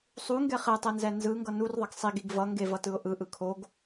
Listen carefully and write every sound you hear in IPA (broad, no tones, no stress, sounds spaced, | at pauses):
sˤ u ŋ ɡ ɛ χ e tˤ e n z ɛ n z ɯ ŋ ɡ ʌ n u r ðˤ ʌ ɡ sˤ i ɡ i ɡ v ʌ ŋ ɡ e v ʌ t ɯ ʊ̯ ʔ ɯ ʔ ɯ kʰ o ɡ